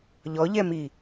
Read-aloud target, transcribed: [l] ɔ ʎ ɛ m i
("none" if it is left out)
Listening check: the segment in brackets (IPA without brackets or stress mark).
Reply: ʎ